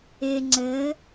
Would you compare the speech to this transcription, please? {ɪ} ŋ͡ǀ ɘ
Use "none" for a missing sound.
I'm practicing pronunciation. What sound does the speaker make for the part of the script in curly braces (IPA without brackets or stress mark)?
ɪ